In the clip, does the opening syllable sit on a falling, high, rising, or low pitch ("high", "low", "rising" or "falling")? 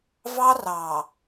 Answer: high